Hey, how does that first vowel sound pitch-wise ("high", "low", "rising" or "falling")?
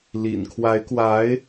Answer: low